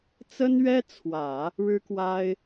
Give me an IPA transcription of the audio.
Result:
t͡sə˥nɥɛ˥t͡sʰwä˨˩˦ | ɻɻ̩˥kwa˥ɪ̯

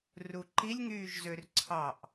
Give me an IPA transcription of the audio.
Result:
ruǃilʲ ŋyːʒzørǀʰɑʔ

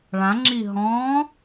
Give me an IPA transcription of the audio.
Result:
ɭãŋ͡ǁi ɦɔ̃

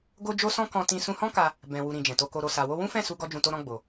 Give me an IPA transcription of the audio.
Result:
ɡo˦d͡ʒo˦sɔ̃˦ kɔ̃˧tĩ˧ sũ˧hɔ̃˦ka˧ | bɛ̃˨wu˨ ɾĩ˨ d͡ʒɛ̃˨to˧ ko˨ɾo˨sa˨wo˧ wũ˦fɛ̃˦˨su˧ ɡɔ˦d͡ʒũ˧to˦ɾɔ̃˦ ɡ͡bo˧

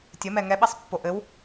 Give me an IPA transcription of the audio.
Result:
tʲəmɛ ŋɛɓɛsˤpːo ʔɘw

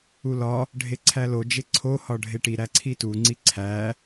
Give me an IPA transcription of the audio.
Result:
ulɒ | ɖʱeǀʰælo d͡ʒeǀʰo hɒɖʱeʈi ɾæǀʰitu ŋ͡ǀiǀʰæ

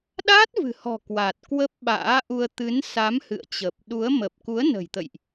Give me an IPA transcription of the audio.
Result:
ɗaː˦˥t̚vɨ̤˨˩hɔ̤˨˩ kwa˨˩t̚kwə˦˥p̚ɓa̰ː˧˥ʔu˧ə̯ t̪ɨ˨˦nsa˨˦mhɨ̰˧˨ə̯t͡ɕə˨˩p̚ ɗu˨˦ə̯mə˨˩p̚ ku˨˦ə̯nə̤˨˩jt̪ə̰˧˨jʔ

